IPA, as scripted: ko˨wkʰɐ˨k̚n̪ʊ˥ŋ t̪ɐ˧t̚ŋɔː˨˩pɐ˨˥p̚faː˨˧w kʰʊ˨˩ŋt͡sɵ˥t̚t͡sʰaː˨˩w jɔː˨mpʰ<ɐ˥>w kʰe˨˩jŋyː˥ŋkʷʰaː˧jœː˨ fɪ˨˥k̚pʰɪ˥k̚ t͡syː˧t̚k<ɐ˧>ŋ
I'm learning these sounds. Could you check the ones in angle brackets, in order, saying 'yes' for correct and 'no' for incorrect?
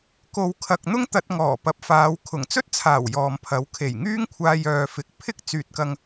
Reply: no, yes

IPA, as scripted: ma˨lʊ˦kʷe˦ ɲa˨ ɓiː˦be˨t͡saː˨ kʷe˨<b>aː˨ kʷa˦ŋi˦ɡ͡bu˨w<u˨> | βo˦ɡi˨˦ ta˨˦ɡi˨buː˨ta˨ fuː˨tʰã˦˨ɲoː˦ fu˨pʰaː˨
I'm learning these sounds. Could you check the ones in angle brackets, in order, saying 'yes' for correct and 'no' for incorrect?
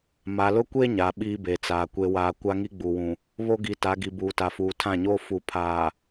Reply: no, no

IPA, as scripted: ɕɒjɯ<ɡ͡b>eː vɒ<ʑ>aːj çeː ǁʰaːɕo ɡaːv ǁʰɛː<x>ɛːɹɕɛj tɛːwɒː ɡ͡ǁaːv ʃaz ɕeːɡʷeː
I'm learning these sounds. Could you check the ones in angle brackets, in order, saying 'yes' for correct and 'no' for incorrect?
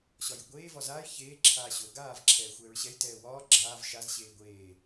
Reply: no, no, no

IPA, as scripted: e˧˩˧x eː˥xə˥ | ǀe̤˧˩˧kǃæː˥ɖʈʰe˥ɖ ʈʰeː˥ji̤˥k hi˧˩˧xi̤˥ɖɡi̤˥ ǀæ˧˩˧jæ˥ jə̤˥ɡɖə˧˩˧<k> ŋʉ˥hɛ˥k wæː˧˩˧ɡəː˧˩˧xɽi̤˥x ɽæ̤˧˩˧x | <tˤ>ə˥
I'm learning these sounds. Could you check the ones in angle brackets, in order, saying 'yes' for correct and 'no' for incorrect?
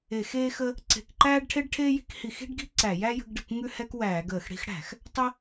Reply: yes, yes

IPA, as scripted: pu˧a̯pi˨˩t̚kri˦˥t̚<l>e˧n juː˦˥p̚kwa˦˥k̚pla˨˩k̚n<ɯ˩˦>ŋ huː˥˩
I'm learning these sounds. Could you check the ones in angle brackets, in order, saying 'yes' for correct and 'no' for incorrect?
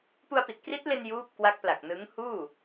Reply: yes, no

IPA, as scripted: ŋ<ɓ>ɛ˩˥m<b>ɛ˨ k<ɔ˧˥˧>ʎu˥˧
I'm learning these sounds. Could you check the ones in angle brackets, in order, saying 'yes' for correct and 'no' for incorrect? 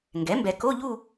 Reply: no, yes, no

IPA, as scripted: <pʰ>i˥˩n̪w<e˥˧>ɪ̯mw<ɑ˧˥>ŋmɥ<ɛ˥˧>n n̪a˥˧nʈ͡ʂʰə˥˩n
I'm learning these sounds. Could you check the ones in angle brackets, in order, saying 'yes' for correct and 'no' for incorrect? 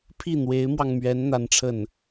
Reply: yes, no, no, no

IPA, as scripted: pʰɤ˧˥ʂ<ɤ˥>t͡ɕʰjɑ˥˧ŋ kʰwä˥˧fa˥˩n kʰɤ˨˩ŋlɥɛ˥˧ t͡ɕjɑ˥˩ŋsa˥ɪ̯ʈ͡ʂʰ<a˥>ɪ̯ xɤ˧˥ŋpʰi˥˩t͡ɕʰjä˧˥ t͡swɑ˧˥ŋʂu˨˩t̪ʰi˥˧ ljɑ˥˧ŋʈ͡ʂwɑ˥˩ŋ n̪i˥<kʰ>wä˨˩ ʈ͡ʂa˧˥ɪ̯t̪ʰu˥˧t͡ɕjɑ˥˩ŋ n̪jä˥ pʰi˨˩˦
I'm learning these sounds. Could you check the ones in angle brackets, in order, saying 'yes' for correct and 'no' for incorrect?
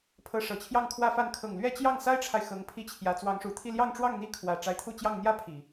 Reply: no, no, yes

